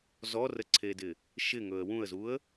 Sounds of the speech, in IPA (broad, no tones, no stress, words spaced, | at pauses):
zɔrəǀʰedɪ | ʃɪŋɵə̯ wũə̯zuə̯